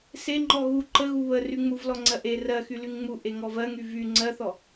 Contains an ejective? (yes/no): no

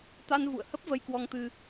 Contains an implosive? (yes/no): no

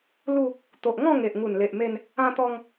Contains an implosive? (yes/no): no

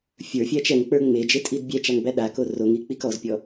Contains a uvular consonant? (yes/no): no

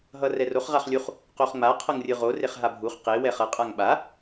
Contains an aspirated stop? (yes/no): yes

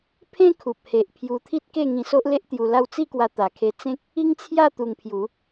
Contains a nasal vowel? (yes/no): yes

